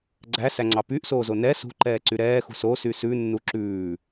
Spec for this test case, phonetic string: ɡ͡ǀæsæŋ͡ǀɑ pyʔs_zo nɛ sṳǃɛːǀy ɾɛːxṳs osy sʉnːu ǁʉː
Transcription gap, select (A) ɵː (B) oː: B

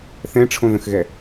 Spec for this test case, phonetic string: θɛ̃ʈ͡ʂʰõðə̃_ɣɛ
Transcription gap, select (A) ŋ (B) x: B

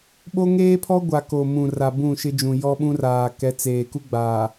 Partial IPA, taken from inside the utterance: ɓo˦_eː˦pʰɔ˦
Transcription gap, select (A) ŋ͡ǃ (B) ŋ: B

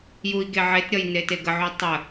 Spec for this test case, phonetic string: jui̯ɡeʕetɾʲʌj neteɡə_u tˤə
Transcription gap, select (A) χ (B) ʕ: B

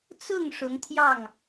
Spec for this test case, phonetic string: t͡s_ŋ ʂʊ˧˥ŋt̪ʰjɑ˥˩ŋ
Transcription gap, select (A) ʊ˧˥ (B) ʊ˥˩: B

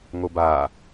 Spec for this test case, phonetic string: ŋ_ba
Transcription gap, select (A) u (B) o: B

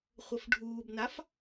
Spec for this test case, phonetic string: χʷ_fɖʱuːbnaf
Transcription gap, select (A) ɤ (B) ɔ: A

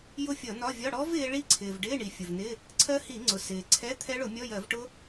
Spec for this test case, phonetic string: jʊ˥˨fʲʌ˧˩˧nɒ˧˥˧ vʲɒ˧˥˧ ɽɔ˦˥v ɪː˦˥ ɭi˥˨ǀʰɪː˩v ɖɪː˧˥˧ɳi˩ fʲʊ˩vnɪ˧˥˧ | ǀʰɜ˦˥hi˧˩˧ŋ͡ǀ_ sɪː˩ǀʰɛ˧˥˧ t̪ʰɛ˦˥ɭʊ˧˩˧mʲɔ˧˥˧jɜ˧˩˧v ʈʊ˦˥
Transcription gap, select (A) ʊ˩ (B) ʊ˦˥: A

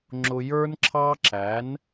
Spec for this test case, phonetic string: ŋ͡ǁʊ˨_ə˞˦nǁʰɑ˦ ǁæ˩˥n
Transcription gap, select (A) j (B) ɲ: A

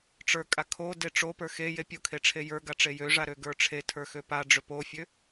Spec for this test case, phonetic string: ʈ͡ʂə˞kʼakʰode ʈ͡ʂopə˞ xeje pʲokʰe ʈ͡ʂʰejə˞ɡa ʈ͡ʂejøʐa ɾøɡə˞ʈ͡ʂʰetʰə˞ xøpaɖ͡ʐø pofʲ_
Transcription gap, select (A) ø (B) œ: A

